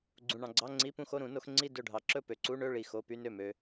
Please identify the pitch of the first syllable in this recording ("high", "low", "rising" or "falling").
low